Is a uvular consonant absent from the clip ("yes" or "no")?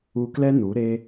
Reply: yes